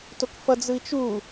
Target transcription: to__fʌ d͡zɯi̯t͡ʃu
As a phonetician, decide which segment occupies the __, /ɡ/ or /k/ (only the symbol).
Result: k